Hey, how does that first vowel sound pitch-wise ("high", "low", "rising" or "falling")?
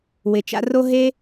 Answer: low